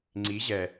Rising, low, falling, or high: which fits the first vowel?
rising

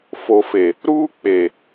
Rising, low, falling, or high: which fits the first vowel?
low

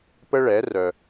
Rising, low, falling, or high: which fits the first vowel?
high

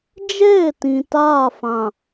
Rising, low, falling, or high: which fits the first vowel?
falling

